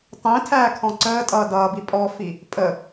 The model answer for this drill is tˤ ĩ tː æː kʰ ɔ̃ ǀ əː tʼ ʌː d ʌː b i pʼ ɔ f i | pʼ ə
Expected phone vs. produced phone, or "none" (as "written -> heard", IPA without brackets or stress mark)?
tː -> tʰ